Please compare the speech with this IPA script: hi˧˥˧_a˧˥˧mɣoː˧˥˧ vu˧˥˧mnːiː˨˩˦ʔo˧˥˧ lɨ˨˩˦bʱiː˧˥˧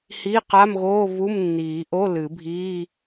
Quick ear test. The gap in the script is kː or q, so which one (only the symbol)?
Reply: q